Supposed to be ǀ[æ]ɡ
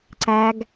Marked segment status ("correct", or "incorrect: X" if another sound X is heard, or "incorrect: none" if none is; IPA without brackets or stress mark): correct